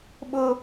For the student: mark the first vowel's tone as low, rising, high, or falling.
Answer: high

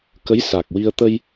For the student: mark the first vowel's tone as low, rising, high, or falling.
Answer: rising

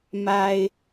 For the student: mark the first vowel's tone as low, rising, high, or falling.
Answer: high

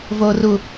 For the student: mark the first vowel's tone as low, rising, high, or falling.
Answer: low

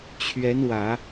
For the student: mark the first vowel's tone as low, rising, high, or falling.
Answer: rising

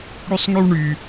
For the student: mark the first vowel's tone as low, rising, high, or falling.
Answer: high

